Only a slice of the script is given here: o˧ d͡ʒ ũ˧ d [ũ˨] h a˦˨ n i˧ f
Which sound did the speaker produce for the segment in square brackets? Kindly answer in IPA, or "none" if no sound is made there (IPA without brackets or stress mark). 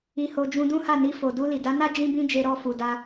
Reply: ũ˦